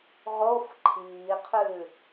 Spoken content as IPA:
ʁof ǃʰiːqʰʉ

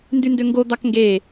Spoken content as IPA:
ndyndøŋɡo d̪ɑkŋɡe

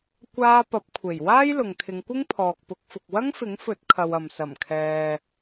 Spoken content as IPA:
kʷaː˥ pɐ˨˥p̚kʷʰe˨˩j waː˥jlʊ˨ŋt̪ʰɪ˨˧ŋkʷɪ˥ŋ pʰɔː˨k̚pʊ˨˥k̚fʊ˨k̚ wɐ˥ŋfɪ˨˥ŋfɵ˨˥t̚kʰɐ˨w ɐ˨m sɐ˨˩mkʰɛː˨

